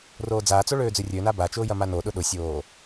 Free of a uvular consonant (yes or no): yes